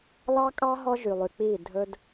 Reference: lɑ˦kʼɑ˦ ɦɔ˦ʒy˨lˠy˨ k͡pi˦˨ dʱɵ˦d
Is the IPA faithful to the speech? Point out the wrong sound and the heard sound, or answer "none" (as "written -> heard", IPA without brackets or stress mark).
none